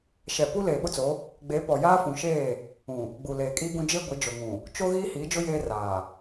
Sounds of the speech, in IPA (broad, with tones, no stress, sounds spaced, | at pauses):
ʃ ɛ˨ p u˦ l eː˨ ɓ ʊ˦ t͡s o˨˦ | ɡ͡b e˨˦ p ɔ˨ j aː˦ f ũ˨ ʃ eː˦˨ | ũ˨ | ɡ͡b u˨ l eː˨ kʼ iː˦ ɡ ũ˦ d͡ʒ e˦ ɡʷ ɪ˨˦ d͡ʒ o˨ ŋ ũ˨ | t͡ʃ o˦ ɣ iː˦ h iː˨˦ d͡ʒ ʊ˦ j eː˦ r aː˨